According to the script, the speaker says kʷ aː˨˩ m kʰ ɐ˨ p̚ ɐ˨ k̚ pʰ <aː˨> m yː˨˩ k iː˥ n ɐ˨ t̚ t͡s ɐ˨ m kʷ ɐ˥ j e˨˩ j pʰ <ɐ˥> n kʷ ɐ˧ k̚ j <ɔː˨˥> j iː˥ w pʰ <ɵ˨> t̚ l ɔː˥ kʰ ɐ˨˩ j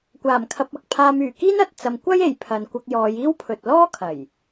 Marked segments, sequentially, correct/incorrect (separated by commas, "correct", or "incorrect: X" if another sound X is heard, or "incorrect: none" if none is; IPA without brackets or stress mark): incorrect: aː˧, incorrect: ɐ˨, incorrect: ɔː˨˧, correct